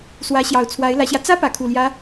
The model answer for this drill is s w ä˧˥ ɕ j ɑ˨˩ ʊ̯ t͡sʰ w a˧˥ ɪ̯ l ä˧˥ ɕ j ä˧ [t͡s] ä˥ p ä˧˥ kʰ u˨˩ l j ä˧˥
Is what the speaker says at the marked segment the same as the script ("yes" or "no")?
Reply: yes